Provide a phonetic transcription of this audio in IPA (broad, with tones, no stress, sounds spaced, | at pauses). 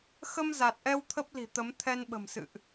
x ə˧ m z a˨˩ t̚ ʔ ɛ˧ w t̪ʰ ə˦˥ p̚ l i̤˨˩ t̪ ə˨˦ m t̪ʰ ɛ˧ n ɓ ə̤˨˩ m s ɨ̰˧˨ ʔ